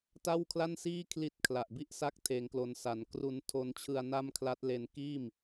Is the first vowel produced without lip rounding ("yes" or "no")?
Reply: yes